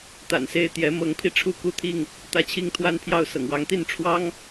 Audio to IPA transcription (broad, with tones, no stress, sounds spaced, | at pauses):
t̪ a̰˨˩ n s e˥˨ ɪ̯ t̪ j ɛ˨˦ m ɤ˨˦ ŋ pʰ i˧ ʈ͡ʂʰ u˥˨ k u˥˨ t̪ʰ i˥˨ ŋ | t̪ ä˦ t͡ɕʰ i˦ ŋ t̪ʰ w a˦ n pʰ j ɑ˥˨ ʊ̯ s ɤ̰˨˩ ŋ w ɑ˨˦ ŋ t̪ i˥˨ n ʈ͡ʂʰ w ɑ˦ ŋ